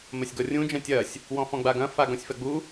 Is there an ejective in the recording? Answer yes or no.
no